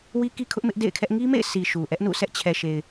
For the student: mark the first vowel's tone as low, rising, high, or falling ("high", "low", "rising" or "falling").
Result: high